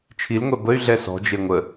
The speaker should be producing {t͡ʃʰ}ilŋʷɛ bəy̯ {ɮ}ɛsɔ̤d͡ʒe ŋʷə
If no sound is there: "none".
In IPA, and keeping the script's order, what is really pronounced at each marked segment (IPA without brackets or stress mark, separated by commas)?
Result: t͡ʃʰ, ɮ